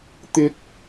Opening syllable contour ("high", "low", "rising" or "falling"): high